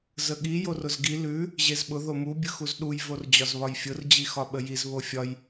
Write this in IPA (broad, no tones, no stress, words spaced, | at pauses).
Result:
zəɠi jorʊzɡi lʉ | ʑezɓʊ ðomu bʲɯxuzɗuj vord͡ʑɒzβɒjfʲʊr d͡ʑixɒɓəjiz βofʲɒj